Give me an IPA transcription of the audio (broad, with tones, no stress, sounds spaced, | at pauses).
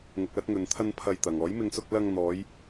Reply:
ŋ ʊ˨ k̚ l ɐ˧ t̚ ŋ ɵ˨ n t̪ʰ ɐ˧ n pʰ ɐ˧ j t̪ ɐ˨ ŋ ɔː˨˥ j m ɪ˧ ŋ s ʊ˧ k̚ l ɐ˧ ŋ n̪ ɔː˨˧ j